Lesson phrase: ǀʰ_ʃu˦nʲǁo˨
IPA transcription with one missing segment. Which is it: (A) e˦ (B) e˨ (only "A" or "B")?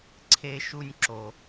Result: A